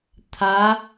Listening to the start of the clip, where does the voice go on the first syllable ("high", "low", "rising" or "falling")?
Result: rising